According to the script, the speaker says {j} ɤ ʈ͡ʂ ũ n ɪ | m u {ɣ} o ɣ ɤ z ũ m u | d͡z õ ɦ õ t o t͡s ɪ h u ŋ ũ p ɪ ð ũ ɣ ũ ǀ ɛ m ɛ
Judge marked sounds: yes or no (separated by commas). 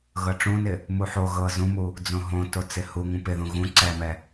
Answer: no, no